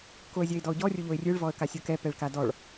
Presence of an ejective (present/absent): absent